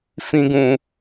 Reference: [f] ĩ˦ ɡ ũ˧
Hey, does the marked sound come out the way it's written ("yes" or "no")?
yes